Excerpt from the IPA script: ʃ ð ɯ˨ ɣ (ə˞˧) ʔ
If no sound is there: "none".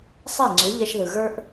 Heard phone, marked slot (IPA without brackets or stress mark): ə˞˧